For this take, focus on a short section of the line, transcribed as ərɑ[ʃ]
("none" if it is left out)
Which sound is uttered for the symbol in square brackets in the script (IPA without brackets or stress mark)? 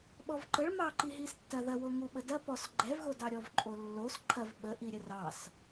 s